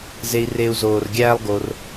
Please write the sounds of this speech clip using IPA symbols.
z e˨ i̯ r e˨ u̯ z oː˩ r ɡʲ æː˦ lˠ ɡ o˨ r

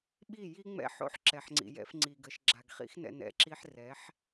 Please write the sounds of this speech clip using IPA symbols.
ɓ i˦˨ j i˦ ŋ͡m ɛ̰˦ ħ o̰˦ ħ ǁ ɛ˨ ħ ŋ͡ǀ ḭ˨ j ɛ̰˧ f ŋ͡ǀ i˨ ɡ ə˨ ʃ ɡ͡ǁ a˨ ɡ χ ḭ˦ x n ɛ̰˧ n ɛ̰˦˨ ǁ i˧ ħ r ɛ˨˦ ħ

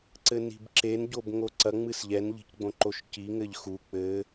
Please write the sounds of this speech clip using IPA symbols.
ǀ ɘ n i̤ b ǁ e n ɟ o b ŋ o ǀ ɐ ŋ͡m ɨ s ʎ ɛ n ʎ i̤ c ɡ͡b õ ǃ o ʃ c i ŋ ɘ ʎ x u k͡p ɘ

